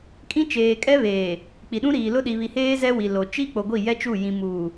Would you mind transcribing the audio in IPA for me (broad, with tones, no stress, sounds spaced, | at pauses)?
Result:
kʼ ĩ˦ t͡ʃ eː˨ kʼ ɛ˦ β eː˨ | k͡p i˨ ɗ ũ˦ ɾ iː˨ l ʊ˦ ɗ i˨ β i˨ h eː˦ z ɛ˦ w i˨ l o˨ t͡ʃ i˦ k͡p o˨ ɡʷ i˦˨ j ɛ˦ t͡ʃ u˦˨ j ĩ˨ m uː˨